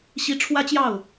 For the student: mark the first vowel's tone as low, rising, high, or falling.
rising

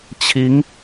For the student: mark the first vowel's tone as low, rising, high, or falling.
rising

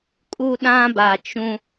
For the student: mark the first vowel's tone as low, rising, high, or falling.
high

